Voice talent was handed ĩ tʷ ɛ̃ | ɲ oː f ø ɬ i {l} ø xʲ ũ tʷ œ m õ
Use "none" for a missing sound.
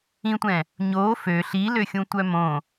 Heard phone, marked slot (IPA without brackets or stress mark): l